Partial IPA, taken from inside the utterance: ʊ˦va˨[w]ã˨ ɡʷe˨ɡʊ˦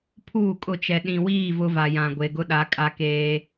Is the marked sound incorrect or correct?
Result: incorrect